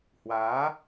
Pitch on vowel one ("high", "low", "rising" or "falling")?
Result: rising